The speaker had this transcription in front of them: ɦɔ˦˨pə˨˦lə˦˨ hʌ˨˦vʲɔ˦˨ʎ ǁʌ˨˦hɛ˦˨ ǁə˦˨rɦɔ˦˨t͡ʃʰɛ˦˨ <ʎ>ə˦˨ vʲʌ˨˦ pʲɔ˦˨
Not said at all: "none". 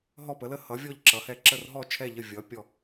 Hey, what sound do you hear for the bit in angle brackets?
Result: ʎ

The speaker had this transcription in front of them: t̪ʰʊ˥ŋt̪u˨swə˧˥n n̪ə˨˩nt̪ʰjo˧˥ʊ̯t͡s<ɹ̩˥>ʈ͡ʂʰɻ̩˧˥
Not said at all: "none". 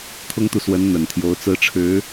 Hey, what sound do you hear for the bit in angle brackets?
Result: ɹ̩˥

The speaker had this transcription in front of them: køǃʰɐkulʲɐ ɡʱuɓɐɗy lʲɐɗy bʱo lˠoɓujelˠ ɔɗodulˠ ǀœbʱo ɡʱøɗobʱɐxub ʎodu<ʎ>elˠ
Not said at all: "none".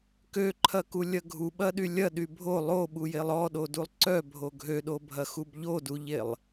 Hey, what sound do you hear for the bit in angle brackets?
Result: ʎ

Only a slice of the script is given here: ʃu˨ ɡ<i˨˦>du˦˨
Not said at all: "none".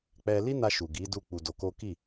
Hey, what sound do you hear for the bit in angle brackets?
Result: i˨˦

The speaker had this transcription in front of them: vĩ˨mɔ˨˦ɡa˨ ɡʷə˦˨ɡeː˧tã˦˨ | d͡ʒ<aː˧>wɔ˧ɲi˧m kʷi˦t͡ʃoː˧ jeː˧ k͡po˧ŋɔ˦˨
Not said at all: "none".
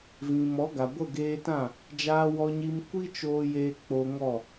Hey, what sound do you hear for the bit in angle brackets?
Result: aː˧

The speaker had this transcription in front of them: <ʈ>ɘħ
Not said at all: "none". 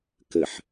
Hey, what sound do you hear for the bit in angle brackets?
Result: k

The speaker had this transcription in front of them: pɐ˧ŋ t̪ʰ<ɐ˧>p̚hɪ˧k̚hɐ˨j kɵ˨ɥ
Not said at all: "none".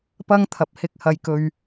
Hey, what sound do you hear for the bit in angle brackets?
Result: ɐ˨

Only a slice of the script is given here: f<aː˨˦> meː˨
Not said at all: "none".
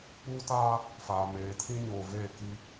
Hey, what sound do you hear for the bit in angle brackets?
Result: aː˨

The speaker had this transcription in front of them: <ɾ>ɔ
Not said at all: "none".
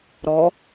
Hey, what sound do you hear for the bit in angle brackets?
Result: ɾ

